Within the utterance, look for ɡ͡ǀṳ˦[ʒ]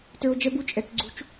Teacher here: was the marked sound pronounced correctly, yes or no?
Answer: no